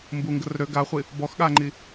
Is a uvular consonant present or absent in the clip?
present